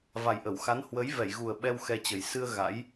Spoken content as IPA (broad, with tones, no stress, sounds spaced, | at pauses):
v a˨˩ j ʔ ə˧˩ w x a˨˦ n h w ə˨˦ j v ɛ˧˩ j ɣ u˨˩ ə̯ ɓ ɛ˧ w x ɛ˧ t͡ɕ ə˨˩ j s ɨ˧ ə̯ ɣ a̰˧˥ j